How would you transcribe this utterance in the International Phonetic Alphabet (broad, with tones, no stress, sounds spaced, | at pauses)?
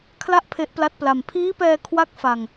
kʰ l a˥˩ ʔ pʰ e˦˥ ʔ p l a˦˥ t̚ p l a˧ m pʰ iː˦˥ p ɛː˧ kʰ w a˥˩ k̚ f a˧ ŋ